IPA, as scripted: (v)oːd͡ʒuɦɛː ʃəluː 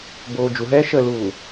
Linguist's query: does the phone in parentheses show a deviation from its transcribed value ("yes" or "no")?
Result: yes